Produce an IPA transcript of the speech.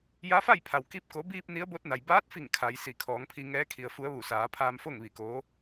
ja˧˥fa˥˨jpʰa˩w ki˧˥p̚ ko˩˧biː˧p̚ ni˧˥ə̯bo˧˥t̚na˩j baː˧˥t̚fi˧˩ŋ kʰa˩˧jsi˧˩ kʰɔː˩˧ŋpʰi˧ ŋɛː˧˥kʰi˩ə̯fu˧˥ə̯ʋu˧˩ saː˩˧pʰaː˧mfo˥˨ŋ ʋi˧˩koː˧˥

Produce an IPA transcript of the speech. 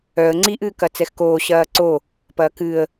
œə̯ ŋ͡ǀiʔ ɨːkɐt͡sɛxkoː ɕɐːǀo | pɐːkɨə̯

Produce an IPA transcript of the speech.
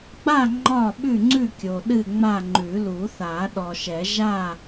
ɡ͡ba˥˨ ŋ͡ǃɒ˥˨ɓʉ˥˨ŋ͡ǀʉ˥˨kʲo˨ ɗɨ˥˨ŋ͡ma˥˨ ŋ͡ǃʉ˨˩˦lu˨˩˦θa˨˩˦ ɗɔ˨ʃɛ˨˩˦ ʒa˥˨

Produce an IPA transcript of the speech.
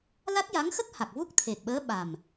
la˦˥t̚ja˧˥ŋxə˦˥k̚ ha˨˩k̚vu˦˥k̚t̪ʰe˨˩k̚ɓəː˧˥ ɓa˨˩m

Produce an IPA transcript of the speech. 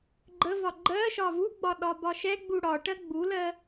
ɡ͡ǃəvɒ ɡ͡ǃɜʃɒ vuɡ͡bɒ ɗɒbɒʃɛɡ͡bu ɽɒʈɜ ɡ͡bulɜ

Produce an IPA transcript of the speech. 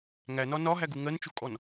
ŋænɒ nɒɦæɡu ŋɜnt͡ʃukʼɔn

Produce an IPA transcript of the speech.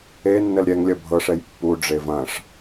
enːəl ɾʲɛŋlʲɐ bʱɤʂɛj pːuɖ͡ʐe vɐ̃ʂ

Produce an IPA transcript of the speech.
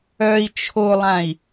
œi̯ t͡ʃʰolˠãi̯

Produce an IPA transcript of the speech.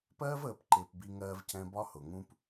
pɜː˦vəː˨pǃɪː˨p bi˧ ŋɜː˧vcɛ̃˧ bɒ˦ hʊ˨ ŋũ˧p

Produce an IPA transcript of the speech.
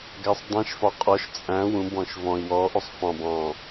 ɡæsˤdˤɛ̃ʃfɒ qʼɔʃ t͡sʼæ̃ wũbɔ̃ʃ vɔ̃i̯ wɔʔosˤ fɑ̃b ɑ̃

